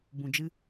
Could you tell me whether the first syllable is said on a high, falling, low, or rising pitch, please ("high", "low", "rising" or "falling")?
low